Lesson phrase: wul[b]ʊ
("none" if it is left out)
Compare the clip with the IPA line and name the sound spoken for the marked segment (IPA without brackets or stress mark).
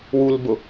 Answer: b